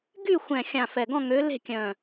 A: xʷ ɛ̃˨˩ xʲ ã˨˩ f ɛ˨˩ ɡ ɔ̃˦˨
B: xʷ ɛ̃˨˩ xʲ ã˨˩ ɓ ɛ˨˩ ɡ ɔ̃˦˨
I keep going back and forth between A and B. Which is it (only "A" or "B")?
A